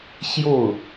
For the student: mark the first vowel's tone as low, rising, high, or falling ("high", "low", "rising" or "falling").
falling